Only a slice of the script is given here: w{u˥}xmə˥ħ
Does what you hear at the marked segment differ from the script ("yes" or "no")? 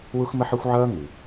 no